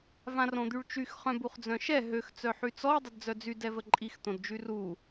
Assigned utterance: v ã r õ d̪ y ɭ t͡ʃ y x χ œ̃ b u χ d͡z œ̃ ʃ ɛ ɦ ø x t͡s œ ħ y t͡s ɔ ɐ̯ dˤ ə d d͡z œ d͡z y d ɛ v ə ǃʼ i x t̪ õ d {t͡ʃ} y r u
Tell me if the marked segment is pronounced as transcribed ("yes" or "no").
no